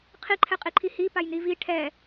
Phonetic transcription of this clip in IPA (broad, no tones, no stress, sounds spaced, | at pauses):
qʰ i ǃʰ ɛ qʼ i ǃʰ i h i p a j n i v i ʈʰ ɛ